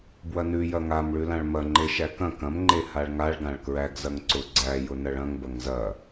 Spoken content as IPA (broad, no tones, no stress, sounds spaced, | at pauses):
b w ɐ n ʉ j ɐ ŋ a m ɭ ʉ l ã ɭ m ɐ ŋ͡ǃ e ʃ æ k ɐ̃ k ɐ̃ m ŋ͡ǃ e h a ɭ ŋ a ɭ ɡ ã ɭ k ɹ æ ɡ z ɐ ŋ ǀ ʊ ɡ͡ǀ æ j ʊ n ɐ ɭ ɐ̃ ŋ b ɐ ŋ z ɐ